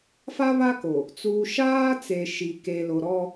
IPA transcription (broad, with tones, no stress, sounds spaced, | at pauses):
f a˦ β a˦ k o˨ | t͡s uː˨ ʃ aː˦ t͡s e˨ ʃ i˨ k e˨ l o˨ ɾ ɔ˦